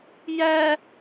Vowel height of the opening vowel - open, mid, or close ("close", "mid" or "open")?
open